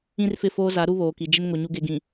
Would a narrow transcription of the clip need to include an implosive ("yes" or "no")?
no